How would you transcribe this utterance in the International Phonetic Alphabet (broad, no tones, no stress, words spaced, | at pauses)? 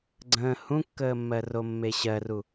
ɡ͡ǀə̃ː hũkːəːmːɜ romːeɕɜru